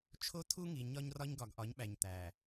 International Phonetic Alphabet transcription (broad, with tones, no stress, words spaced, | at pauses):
t͡ʃʰo˦tʰu˦ŋi˨ ɲɒ˦ɲrɒ˦ɲ ɡɒ˨ɡʔɒ˨˦ɲɓæ˨ɲ t̪æ˨